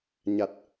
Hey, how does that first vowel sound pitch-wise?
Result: low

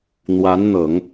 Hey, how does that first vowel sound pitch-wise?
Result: rising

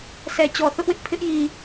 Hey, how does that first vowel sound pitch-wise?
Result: low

